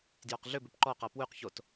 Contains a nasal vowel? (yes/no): no